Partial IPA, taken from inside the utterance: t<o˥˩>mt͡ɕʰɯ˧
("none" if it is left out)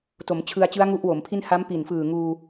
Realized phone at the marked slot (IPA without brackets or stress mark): o˩˦